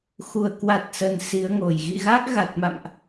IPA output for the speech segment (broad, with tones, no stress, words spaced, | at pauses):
xu˧˩ə̯kwa˨˩t̚sə˨˩n si˨˦ə̯ŋo˧˩j ɣḭ˧˨ɣa˦˥k̚ɣa˨˩t̚ma̰˧˨mʔ